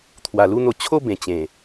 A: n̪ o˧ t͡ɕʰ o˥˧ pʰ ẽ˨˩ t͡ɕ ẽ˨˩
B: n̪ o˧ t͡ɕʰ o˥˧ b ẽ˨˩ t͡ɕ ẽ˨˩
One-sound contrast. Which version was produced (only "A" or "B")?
B